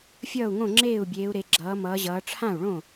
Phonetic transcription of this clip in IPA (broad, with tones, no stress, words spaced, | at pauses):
fʲʌː˥˩u̯ŋõ˥˩ŋ͡ǁeː˥˩u̯bʲeː˩˧u̯ ɾe˩˧ɡ͡ǁʌː˩˧mʌː˩˧ʑʌː˩˧ ʈ͡ʂʰã˥˩u̯ɭõ˥˩